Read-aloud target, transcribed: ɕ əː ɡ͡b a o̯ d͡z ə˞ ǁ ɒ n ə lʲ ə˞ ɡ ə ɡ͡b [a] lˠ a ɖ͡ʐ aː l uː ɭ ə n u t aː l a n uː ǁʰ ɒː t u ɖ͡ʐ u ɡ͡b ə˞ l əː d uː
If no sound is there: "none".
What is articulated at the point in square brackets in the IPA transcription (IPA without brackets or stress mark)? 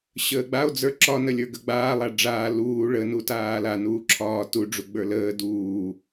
aː